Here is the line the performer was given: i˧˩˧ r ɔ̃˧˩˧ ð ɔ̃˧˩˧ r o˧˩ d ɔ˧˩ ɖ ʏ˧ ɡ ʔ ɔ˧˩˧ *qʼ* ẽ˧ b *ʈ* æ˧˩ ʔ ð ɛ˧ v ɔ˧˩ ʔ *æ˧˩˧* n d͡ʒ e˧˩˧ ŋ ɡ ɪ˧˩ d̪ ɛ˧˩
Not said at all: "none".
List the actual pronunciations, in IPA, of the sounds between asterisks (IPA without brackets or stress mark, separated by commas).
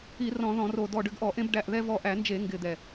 ʔ, ɖ, æ˧˩˧